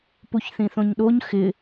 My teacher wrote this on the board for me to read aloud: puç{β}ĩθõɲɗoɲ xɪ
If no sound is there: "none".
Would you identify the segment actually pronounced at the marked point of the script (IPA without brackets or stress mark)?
θ